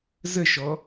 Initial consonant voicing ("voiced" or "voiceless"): voiced